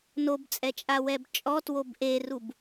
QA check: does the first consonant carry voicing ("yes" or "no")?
yes